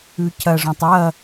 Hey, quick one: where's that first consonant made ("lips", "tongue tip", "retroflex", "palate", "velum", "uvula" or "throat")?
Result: palate